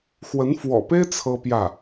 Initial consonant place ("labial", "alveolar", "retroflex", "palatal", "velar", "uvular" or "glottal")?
velar